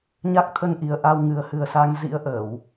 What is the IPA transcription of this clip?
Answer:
ɲ a˦˥ k̚ t̪ʰ ə˧ n ʔ i˨˩ ə̯ ʔ a˧ w ŋ ɨ˨˩ ə̯ h ɨ˨˩ ə̯ s a˧ ŋ z ḭ˧˥ ə̯ ʔ əː˧˩˨ w

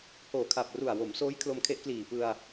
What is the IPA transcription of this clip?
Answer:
h oː˨˩ kʰ a˨˩ p̚ r u˨˩ a̯ w o˩˦ m s oː˦˥ j kʰ l o˧ m kʰ e˦˥ ʔ k l iː˨˩ p ɯ˧ a̯

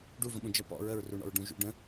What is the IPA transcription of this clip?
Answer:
ɖ u v ə̃ ɓ ũ d͡ʒ ɐ p ɔ̰ ɹ ə ɹ r u ɳ ɔ̰ ɹ ɖ ũ ʒ ṵ ɖ ə̃

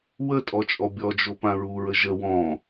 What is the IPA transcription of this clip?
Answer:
w ə tʼ ɔ t͡ʃʼ ɔ bʲ ɔ d͡ʒ o p ã ɹ u ɹ ə ʒ ə w ɔ̃

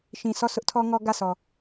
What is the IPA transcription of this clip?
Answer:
ʃ ĩ˨ s ɔ˦˨ s ʊ˦ ʔ tʰ ɔ˦ ŋ ɔ˦ ɡ ä˦˨ s ɔ˨

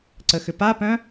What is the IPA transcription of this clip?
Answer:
ǀ ə x ʏ p a p œ̃

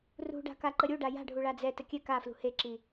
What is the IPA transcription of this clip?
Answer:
r ṳ ɖ a̤ k a ǃ ə ɾʲ u ɖ a j a̤ ɖʱ u ɭ a d͡z ɛ t ə kʲ ɛ k a f l ṳ h e ǁ i

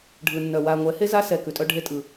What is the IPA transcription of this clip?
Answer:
ɖʱ ɯ˨ nː œ˨ w a˨ ŋʷ ɛ˨˦ h e˦ z a˦ s ɛ˨ k ʉ˨ tʼ œ˦ ɖʱ e˦ tʼ ɯ˨

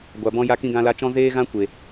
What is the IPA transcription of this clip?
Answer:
ɡʷ a˨ b ɔ̃˧ j a˧ k ĩ˧ ɡ ã˧ l a˧ t͡ʃ ɔ̃˦ z eː˦ ɣ ã˦ kʷ e˨

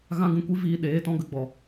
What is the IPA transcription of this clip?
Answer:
ɣ ã˦ ɡ ũ˧ kʷ i˦ v iː˧ ɗ eː˨˦ t ɔ̃˦ ɡ ə˨˦ ɡ͡b ɔ˨

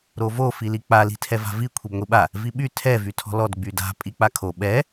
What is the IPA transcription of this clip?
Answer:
ɾ o v o f i l i k͡p a l i̤ tʰ ɛ v a̤ v i kʷʰ i b ŋʷ i ɓ a | v i ɓ y tʰ ɛ v y tʰ ɔ̤ l ɔ d ɡ͡b y d a̤ pʼ i k͡p a kʰ o ɓ ɛ

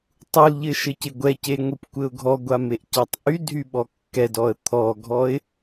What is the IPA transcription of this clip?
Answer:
tˤ u l ʎ ɘ ʃ ɘ c ɪ ɡʷ ɛ c e ŋʷ i p kʷ ɘ ʊ̯ ɡʱ ɔ ɡʷ a m e ʔ c a tˤ ʔ y dʱ y ɓ ɔ kː ɛ d ɔ ə̯ t̪ʰ ɔ ɡʱ ɔ ɪ̯

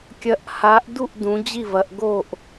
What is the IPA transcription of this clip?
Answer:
kʲ ɐ˨˦ ʔ h a˨˦ ʔ d u˥˨ ʔ d ũ˨˦ d͡ʑ i˥˨ v ɐ˨˦ ʔ ɡ o˥˨ ʔ

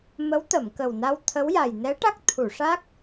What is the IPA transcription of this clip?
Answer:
m ə˧˥ w t̪ ə˨˩˨ m k ə˨˩ w n a˧ w t̪ʰ ə˧˥ w j a˨˩ j n ɛ˧˥ ʈ a˦˥ k̚ t̪ʰ u˨˩˨ ʂ a˦˥ k̚

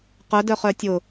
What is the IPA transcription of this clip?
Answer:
q œ d œ χ œ tʲ ʊ

